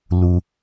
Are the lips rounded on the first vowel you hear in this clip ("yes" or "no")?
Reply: yes